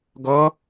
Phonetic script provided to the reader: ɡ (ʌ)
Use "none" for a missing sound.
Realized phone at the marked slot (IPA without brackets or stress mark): ʌ